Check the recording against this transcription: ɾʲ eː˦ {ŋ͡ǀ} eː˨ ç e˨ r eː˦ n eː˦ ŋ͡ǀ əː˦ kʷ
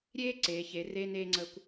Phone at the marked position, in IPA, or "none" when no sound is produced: ǀ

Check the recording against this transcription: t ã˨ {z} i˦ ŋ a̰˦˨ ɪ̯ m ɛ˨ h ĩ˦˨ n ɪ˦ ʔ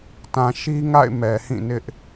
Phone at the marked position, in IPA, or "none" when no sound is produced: ʃ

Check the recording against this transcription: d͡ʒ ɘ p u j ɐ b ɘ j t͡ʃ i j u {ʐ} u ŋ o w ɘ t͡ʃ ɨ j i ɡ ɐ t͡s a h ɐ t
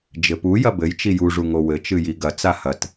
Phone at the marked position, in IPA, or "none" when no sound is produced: ʐ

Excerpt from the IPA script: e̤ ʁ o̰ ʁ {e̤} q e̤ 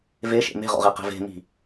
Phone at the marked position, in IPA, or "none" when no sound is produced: e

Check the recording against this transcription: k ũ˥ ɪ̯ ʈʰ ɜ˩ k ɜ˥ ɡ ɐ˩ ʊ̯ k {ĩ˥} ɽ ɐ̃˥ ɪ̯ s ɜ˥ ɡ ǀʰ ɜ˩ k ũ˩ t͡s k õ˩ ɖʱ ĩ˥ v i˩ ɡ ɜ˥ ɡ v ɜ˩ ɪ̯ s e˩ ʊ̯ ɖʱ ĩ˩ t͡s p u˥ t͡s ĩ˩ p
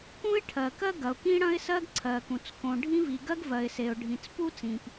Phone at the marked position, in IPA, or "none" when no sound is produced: ĩ˥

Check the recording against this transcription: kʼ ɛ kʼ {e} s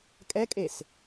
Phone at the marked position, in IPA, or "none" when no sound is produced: e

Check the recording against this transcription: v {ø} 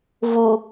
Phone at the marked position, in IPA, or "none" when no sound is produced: u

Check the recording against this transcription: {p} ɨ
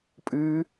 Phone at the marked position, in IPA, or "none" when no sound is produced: pʼ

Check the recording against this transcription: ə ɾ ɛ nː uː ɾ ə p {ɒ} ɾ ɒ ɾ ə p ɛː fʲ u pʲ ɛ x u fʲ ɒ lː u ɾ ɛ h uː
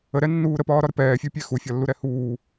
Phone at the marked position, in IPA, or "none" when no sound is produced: ɒː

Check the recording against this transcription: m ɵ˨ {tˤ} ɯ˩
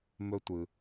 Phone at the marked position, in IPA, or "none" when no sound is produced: tʷ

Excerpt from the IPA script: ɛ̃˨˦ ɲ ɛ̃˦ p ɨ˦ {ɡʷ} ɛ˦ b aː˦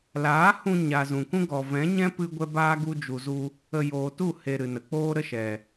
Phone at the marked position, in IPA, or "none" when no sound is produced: ɡʷ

